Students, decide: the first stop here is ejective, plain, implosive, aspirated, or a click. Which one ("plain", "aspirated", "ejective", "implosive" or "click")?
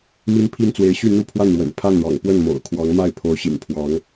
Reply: aspirated